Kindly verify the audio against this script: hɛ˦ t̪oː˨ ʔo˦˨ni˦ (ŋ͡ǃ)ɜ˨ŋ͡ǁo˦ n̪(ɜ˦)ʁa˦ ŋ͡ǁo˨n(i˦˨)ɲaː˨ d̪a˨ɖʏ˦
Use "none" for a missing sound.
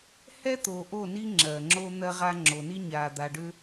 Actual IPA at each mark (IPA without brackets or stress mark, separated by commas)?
ŋ͡ǁ, ɜ˦, i˦